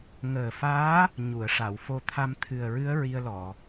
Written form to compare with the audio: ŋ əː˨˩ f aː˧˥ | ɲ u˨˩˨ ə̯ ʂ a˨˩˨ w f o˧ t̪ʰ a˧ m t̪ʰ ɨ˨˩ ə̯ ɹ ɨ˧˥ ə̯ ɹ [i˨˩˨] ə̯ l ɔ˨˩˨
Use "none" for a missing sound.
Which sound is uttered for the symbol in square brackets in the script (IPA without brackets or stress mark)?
i˧